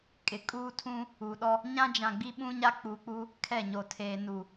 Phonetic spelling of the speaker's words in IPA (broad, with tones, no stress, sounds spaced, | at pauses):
kʼ ɪ˨ kʼ uː˦ tʰ ũ˦ | u˨ ɗ ɔ˦ | ɲ ã˦ d͡ʒ ã˨ ɡ͡b i˦ ɓ ũ˦ ɲ a˦ k͡p u˨ k͡p u˦ | kʰ ɛ˦˨ ɲ o˨ tʰ eː˨ n u˨